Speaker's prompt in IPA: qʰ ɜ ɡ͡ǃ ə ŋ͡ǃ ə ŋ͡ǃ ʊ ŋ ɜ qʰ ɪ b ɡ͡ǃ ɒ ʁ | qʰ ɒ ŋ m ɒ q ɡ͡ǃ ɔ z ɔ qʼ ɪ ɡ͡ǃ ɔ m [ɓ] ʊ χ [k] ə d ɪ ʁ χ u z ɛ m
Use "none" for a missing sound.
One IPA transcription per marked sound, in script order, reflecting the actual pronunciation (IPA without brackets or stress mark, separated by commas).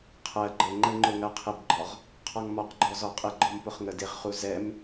p, ŋ